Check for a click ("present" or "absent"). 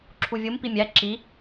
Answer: present